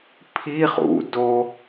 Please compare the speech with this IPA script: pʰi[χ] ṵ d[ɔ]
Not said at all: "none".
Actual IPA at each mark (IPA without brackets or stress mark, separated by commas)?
χ, o